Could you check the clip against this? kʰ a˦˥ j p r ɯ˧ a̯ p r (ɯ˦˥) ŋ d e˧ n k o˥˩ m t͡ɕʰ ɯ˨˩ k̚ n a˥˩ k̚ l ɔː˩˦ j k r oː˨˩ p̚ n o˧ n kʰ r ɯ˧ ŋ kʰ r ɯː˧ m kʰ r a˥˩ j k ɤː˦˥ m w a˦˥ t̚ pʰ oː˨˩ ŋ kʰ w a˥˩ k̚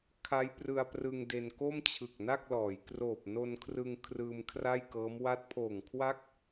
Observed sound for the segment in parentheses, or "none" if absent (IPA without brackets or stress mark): ɯ˧